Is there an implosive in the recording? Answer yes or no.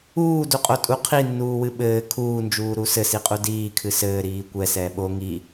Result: yes